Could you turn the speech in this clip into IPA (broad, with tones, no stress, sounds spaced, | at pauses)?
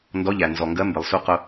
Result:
n d ɔ˧˥ ʎ æ˩ n z ɔ˩ ŋ ɡ ɜ˧˥ m b ɪ˩ lˠ s u˧˥ q ʊ˧